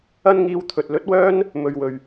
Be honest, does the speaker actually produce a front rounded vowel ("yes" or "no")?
yes